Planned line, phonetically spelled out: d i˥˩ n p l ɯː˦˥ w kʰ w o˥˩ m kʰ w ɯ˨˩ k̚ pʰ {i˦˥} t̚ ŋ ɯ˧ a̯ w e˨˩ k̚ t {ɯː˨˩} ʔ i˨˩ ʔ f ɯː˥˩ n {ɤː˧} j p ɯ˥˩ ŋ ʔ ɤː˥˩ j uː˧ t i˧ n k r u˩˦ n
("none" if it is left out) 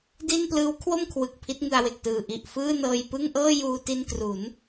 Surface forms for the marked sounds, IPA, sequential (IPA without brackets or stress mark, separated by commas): i˦˥, ɯː˨˩, ɤː˧